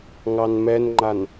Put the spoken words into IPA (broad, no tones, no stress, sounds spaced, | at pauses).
ŋ ɑ n m ɛ n ŋ͡ǃ a n